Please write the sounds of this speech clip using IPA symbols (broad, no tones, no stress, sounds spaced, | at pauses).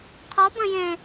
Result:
qʰ ɔ b ə̃ j ẽ